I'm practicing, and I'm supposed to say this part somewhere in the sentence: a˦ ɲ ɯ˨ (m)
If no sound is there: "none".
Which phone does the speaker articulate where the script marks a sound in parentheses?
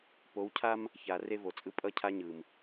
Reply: m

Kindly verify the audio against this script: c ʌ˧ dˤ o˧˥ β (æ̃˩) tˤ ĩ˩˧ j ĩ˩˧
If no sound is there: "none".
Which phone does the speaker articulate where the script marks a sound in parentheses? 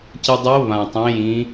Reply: ã˩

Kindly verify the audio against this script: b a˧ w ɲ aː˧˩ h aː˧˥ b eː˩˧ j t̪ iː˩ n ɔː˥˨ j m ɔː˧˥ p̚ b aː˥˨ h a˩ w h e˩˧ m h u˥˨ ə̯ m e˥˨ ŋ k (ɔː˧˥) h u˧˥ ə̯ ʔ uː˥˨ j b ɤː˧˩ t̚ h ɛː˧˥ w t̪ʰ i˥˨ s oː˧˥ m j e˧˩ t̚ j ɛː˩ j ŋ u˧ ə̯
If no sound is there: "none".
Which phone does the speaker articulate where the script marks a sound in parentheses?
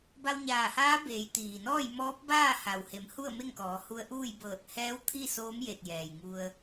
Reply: ɔː˩˧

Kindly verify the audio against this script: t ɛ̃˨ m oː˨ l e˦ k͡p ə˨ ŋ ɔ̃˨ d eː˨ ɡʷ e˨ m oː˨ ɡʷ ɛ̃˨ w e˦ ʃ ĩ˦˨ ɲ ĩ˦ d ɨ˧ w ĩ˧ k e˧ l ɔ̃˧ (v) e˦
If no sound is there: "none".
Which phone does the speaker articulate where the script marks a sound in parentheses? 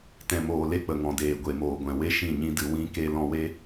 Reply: w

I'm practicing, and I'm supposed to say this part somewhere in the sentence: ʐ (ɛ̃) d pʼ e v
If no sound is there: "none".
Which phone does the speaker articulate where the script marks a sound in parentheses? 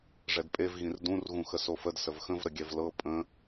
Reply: ɛ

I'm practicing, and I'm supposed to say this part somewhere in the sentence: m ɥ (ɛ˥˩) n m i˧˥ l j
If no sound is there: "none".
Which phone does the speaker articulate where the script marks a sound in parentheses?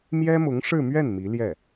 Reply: ɛ˥˩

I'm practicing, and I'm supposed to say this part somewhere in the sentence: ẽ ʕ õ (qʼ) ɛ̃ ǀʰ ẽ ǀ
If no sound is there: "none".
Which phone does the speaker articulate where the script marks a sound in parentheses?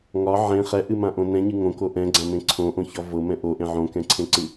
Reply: k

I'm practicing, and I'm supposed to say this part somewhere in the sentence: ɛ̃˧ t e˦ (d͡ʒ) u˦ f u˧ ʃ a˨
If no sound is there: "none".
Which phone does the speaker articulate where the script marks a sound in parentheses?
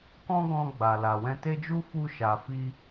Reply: d͡ʒ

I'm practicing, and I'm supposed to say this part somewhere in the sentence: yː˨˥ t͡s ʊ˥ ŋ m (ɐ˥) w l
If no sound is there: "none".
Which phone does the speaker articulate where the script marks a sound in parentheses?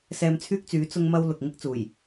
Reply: ɐ˥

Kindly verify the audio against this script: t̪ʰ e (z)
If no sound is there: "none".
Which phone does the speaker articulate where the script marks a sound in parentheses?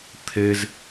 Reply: z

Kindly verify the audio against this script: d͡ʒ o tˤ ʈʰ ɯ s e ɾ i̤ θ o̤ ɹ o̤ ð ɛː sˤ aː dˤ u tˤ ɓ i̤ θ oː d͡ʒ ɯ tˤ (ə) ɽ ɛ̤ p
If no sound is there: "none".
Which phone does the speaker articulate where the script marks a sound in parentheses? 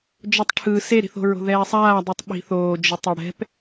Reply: ʌ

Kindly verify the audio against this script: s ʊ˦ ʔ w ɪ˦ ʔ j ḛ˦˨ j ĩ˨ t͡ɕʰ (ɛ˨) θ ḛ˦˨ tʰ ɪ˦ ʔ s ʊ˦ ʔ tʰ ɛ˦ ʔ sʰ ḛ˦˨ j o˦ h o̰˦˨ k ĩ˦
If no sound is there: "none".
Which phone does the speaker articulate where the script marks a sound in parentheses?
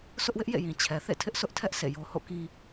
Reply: ɛ˨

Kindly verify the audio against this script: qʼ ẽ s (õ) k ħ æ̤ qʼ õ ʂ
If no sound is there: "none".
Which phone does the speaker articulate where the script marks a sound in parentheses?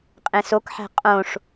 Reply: o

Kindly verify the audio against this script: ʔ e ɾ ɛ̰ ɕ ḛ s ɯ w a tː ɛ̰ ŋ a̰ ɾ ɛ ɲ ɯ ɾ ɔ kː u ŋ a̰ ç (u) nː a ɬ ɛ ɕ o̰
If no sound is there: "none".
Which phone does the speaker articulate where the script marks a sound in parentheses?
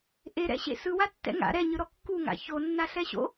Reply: o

